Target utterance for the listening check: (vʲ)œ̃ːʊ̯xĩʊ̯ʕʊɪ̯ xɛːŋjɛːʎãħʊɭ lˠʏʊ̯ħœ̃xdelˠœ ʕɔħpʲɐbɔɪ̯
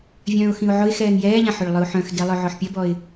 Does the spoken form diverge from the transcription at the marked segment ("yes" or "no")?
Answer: no